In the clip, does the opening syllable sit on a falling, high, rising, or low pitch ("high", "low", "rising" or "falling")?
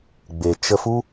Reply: low